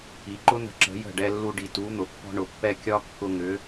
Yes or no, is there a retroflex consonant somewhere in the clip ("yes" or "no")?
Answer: yes